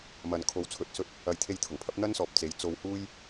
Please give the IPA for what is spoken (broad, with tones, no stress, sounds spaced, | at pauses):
m ɐ˨ n kʰ o˨˥ w t͡sʰ ɵ˨˥ t̚ s ɵ˧ t̚ | ɐ˨˧ j t̪ʰ e˧ j t̪ʰ ʊ˨˩ ŋ pʰ ɐ˨˥ p̚ n̪ ɐ˥ n s ɔː˨ p̚ t͡s e˨˥ j t͡s o˧ w h uː˥ j